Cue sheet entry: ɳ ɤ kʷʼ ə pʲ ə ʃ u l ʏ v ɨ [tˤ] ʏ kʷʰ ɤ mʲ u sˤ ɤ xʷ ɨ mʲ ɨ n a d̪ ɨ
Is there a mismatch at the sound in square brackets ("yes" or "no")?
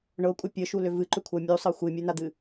yes